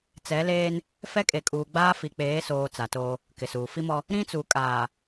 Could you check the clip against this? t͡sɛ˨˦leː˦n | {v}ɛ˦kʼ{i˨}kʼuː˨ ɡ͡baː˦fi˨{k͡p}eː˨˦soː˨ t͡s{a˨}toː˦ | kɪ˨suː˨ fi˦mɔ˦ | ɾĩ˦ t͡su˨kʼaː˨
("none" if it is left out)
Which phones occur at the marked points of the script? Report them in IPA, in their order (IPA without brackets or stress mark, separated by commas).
f, e˨, k͡p, a˨